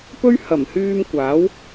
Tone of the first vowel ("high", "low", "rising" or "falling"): high